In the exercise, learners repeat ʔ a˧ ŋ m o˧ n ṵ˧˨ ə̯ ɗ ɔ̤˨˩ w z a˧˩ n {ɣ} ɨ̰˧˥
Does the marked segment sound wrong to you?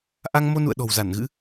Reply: no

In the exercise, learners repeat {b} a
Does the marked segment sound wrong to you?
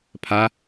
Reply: yes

